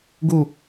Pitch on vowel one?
falling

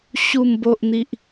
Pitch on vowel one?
low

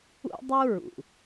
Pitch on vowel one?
high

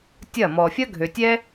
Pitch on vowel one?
falling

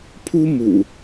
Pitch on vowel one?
high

